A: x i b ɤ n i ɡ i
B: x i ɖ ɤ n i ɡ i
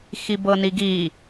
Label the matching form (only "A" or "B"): A